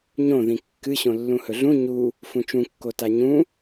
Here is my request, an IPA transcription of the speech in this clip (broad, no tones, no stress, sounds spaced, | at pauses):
ɲ õ ð ĩ kː ɨ ɕ õ lː ũ h ɵ ɮ ũ ɲ u | f ũ t͡ʃ ũ kː o t a ɲ ũ